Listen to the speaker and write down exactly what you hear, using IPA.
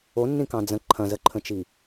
o nː ĩ k ɑ̃ d͡z ə̃ ǃʰ ɐ̃ z ə ǃʰ ə̃ t͡ʃ i

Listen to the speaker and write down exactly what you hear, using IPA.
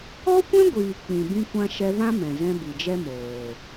ɔ˦ kʷ ɛ̃˦ ɡʷ iː˨ k͡p ĩ˨ b ĩ˧ kʷ ã˧ ʃ ɛ˧ v ã˦ m ɛ̃˨ z ɛ̃˧ b i˨ d͡ʒ ɛ˦ m oː˨

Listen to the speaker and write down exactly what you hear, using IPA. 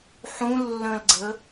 ħ ũ lː ə̃ l ɡ͡ǀ ə

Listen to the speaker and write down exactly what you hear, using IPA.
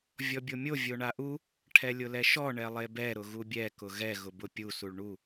vʲ ɔ bʲ o mʲ o vʲ o ɳ a ʔ u | ʈʰ ɛ lʲ ʊ l ɛ ʃ ɔ ɳ ɛ lˠ e b ɛ ɾ ʊ ɣ u bʲ ɛ k ʊ ɣ ɛ ɣ ʊ b ʊ pʲ u s u ɭ ɳ u

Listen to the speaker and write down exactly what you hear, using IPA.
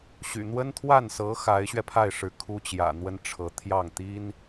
ɕ y̰˨˩ n̪ w ə˥ n t̪ʰ w a˥˩ n s ɤ˧˥ x a˧˥ ɪ̯ ɕ ɥ ɛ˧ pʰ a˥˩ ɪ̯ ʂ ɻ̩˧˥ kʰ u˥ t͡ɕ j ä̰˨˩ n̪ w ə˥ n ʈ͡ʂʰ ɤ˧˥ t̪ʰ j ɑ˥˩ ŋ t̪ i˥ n

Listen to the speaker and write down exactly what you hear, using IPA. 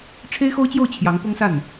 ʈ͡ʂʰ e˥ ɪ̯ x o˥ ʊ̯ t͡ɕ j o˥˩ ʊ̯ t͡ɕʰ j ɑ˧˥ ŋ p ʊ˥ ŋ s a˥˩ n

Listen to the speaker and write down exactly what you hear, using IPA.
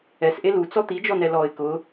ɛ s ʔ e l u t͡s ɔ t̪ i d͡ʒ ɔ n ɛ l ɔ ɪ̯ k ʊ

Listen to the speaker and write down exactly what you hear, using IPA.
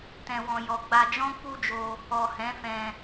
t ɛ̃˨ w ɔ̃˨ j ɔ˨ ɡ͡b a˧ d͡ʒ ɔ̃˦ k͡p u˦ d͡ʒ o˧ | ɔ˨ h ɛ̃˨˦ f ɛ̃˧

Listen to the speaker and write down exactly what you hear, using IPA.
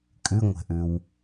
kʼ ʉ ŋʷ ɛ̤ ʔ ʉ w

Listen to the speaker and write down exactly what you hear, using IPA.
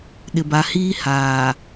ɗ ɪ˨ b a˨ h iː˦ h aː˨

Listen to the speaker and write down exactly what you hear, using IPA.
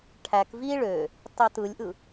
ʈʰ æ k v i ɭ ø | tˤ y t ɯ lʲ ʔ ɯ

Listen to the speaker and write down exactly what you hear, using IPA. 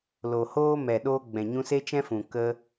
l o˨ h oː˦ m ɛ˨ ɗ oː˧ ɡ͡b ɛ̃˨ ɲ ũ˧ s e˦ t͡ʃ ɛ̃˦ f ũ˨ k ə˧

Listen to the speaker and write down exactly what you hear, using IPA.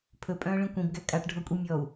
pʰ ɵ pʼ œ̃ː ɭ ĩ kʷ ĩ b ɡ æ kʼ a ʈ ɖʱ ɔ kʷʼ i mʲ ɔ u̯

